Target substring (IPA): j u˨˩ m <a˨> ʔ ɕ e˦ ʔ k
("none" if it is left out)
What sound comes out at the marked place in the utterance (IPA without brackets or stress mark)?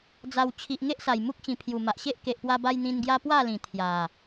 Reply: a˨